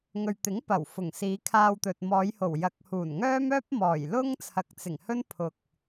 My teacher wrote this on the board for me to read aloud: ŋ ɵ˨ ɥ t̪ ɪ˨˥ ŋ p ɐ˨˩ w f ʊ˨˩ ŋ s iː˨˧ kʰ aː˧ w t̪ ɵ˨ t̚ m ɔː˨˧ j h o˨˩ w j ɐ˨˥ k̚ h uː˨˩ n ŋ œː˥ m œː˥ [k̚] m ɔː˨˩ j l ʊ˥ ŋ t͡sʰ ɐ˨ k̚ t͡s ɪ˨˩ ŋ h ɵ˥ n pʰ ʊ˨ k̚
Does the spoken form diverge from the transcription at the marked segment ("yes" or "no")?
yes